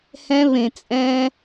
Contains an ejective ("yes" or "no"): yes